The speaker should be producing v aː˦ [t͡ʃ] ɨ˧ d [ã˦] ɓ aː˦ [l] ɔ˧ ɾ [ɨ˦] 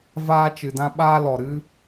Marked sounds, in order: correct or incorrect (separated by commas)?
correct, correct, correct, correct